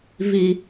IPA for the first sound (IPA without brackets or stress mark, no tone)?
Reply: v